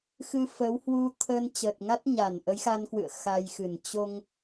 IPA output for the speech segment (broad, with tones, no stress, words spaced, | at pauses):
xɨ˧fə˨˦w hwu˧t̪ʰə˧n t͡ɕəː˨˩t̚ŋa˦˥t̚ɲa˧˩n ʔə˨˦jxa˧nkwɨ̰˧˨ə̯ xa˧jxɨ˧˩n t͡ɕo˧ŋ